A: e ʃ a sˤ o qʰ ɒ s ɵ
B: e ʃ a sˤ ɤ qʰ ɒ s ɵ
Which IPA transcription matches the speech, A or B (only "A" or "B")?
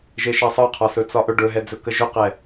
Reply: B